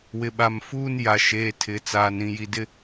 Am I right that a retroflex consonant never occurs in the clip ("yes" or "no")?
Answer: yes